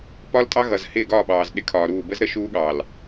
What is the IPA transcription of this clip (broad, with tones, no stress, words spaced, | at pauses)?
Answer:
pɒ˦ltʼɑ˦ ɣʌ˨zhɪː˦˨ɡɒː˦˨ɓɑː˨z ɗɪ˦kʰɒː˨ɾuː˦˨ bə˦zɾə˦ ʃuː˦ɠɑː˨l